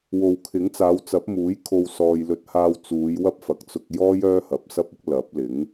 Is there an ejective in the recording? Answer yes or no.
no